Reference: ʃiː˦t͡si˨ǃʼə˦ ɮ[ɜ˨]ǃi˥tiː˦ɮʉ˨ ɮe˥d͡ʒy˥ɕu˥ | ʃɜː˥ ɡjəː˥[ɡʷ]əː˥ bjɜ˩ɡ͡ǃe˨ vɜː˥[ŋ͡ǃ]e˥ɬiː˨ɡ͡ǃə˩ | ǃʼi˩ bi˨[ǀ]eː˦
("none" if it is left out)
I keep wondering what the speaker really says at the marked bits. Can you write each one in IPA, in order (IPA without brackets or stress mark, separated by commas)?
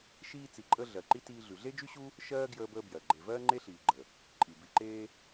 ɜ˨, b, ŋ͡ǃ, ǃ